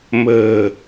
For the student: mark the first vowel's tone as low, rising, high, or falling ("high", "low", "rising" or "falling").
low